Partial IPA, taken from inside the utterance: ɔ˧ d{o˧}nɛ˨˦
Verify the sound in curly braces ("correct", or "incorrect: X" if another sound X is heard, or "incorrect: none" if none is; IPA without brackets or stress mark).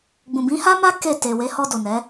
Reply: incorrect: o˨